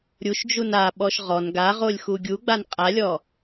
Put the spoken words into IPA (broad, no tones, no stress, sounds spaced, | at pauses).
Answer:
ɾʲ u ʃ d͡ʒ u n a ɓ ɔ ʃ ʁ ɔ n ɡ a ʁ o lʲ x u ɡʲ u ɡ͡b a n qʼ a lʲ ɔ